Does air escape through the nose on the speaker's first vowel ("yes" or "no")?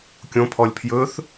yes